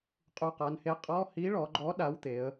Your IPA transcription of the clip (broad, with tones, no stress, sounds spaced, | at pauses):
qʼ u˨˩ q a˩˧ n h e˨˥ qʼ ɔ˧˥˧ h i˨˥ ɭ ɔ˩˧ ɡ͡ǃ ɔ˨˥ ɗ a˨˥ w t̪ e˩˧ ə̯